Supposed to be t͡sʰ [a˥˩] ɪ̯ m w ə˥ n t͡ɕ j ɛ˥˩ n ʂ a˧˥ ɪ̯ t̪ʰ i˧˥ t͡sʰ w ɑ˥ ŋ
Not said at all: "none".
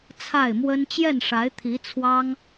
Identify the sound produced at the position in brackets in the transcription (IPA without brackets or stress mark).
a˥˩